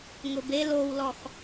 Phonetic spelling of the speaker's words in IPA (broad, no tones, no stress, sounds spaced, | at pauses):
ŋ ʊ b e l o w l ɔ x